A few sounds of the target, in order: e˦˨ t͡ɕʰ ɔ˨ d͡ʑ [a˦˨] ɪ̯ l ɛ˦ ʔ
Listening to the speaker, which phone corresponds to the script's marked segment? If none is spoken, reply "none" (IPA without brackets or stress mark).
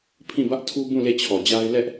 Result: a˦